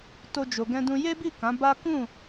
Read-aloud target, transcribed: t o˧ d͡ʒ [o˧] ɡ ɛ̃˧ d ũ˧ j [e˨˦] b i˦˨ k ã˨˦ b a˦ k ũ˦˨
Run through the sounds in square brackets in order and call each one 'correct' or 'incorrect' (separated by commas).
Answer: incorrect, incorrect